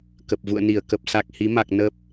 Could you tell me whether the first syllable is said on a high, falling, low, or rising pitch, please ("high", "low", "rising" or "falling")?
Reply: low